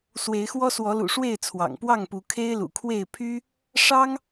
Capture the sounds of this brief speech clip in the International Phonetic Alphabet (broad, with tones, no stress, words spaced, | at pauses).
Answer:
swe˨˦ɪ̯xwɔ˦swɔ˨˦lṵ˨˩ ʂwe˥˨ɪ̯t͡sʰwɑ̰˨˩ŋpwɑ˥˨ŋpu˨˦ kʰe˦ɪ̯lṵ˨˩kʰwe˥˨ɪ̯ pʰy˦ | ʂɑ˦ŋ